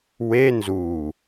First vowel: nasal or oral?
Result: oral